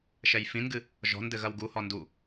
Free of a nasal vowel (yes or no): no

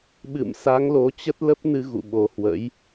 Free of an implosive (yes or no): no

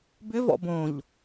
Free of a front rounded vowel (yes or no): no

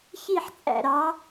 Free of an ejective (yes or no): no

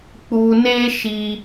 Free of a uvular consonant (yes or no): yes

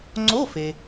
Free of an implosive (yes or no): yes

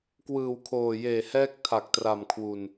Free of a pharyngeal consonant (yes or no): yes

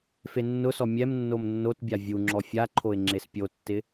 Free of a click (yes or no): no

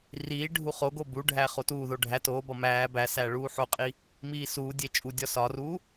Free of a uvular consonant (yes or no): no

